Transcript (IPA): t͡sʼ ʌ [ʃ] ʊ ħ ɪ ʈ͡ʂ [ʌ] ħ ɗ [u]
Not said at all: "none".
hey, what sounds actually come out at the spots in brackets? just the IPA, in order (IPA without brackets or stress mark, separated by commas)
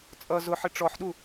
z, ɔ, u